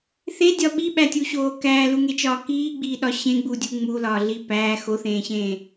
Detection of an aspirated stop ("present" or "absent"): absent